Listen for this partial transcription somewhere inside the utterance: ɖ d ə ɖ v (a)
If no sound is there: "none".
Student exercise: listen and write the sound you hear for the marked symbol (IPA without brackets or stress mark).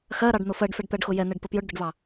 ɑ